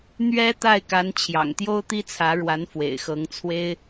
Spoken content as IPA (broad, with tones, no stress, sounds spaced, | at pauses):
n̪ ɥ ɛ˥ t̪ a˥˩ ɪ̯ k a˧˥ n t͡ɕʰ j ɑ̰˨˩ ŋ t̪ j o˥ ʊ̯ t̪ i˥ t͡sʰ ä˧˥ ɻ w a˧˥ n f w ḛ˨˩ ɪ̯ x ɤ˧˥ ŋ t͡sʰ w e˥ ɪ̯